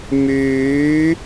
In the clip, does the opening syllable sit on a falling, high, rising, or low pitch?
rising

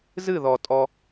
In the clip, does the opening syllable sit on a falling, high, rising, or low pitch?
falling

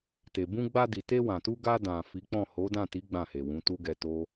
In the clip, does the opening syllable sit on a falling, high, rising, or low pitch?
low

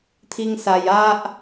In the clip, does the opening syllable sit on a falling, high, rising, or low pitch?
high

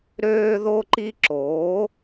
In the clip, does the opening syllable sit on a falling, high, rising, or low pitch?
high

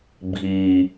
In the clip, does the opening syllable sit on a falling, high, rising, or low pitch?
low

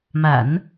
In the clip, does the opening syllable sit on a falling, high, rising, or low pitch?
low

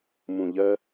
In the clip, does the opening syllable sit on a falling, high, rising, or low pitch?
low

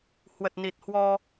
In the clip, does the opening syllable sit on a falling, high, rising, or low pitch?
low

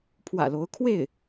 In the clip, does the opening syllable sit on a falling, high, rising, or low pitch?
low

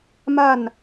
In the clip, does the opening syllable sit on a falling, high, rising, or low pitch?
falling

